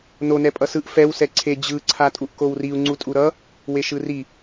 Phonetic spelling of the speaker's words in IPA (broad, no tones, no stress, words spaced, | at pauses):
nonɛ pʼʌsɯʔ fɛw sɛǀʰe d͡ʑɯ ǀʰatʼuʔkowriu̯ ŋ͡ǀutʼuɾʌ | weʃɯri